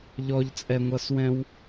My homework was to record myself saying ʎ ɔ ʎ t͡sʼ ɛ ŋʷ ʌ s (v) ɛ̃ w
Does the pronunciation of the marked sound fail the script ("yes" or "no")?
yes